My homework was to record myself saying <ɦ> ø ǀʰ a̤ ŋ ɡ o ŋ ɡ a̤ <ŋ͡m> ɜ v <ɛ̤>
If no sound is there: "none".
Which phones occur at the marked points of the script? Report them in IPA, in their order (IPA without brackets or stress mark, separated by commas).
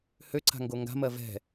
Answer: h, m, ɛ̤